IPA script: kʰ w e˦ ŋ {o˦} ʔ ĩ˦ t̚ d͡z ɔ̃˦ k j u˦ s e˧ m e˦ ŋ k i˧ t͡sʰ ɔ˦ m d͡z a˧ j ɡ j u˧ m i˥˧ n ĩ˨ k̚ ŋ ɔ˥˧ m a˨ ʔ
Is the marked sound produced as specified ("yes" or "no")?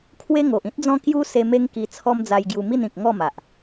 no